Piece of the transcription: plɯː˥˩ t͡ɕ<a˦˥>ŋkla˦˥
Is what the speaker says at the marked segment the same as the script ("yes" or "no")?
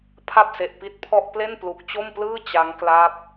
yes